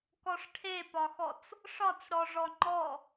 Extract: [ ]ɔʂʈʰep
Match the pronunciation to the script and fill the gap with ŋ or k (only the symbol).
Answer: k